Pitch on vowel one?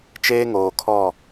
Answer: high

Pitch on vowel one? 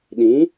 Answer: rising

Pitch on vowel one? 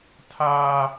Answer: high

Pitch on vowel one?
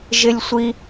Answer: high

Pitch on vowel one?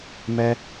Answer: high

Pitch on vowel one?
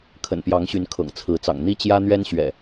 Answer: low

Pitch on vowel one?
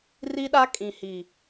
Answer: high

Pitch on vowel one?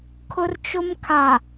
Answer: high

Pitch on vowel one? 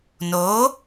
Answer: rising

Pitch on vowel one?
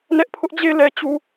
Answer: high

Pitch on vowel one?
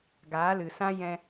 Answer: rising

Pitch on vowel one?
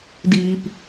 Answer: low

